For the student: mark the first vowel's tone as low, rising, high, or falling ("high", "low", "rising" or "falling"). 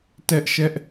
high